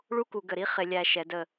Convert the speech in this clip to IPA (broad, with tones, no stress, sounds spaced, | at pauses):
ɭ u˦ k u˨ ɡ ə˨ ɾ i˦ χ ɪ˨ lʲ æ˨ ʃ ɛ˨˦ d ə˦˨